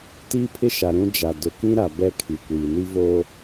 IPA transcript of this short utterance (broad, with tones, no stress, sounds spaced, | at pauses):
t iː˦ pʰ ɪ˦ ʃ a˨ ɾ ũ˦ d͡ʒ a˨ d ʊ˨ k ĩ˦ ɾ a˨ b ɛ˦ kʰ i˨ kʷ iː˨ n i˦ v o˦